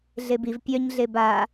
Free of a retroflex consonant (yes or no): yes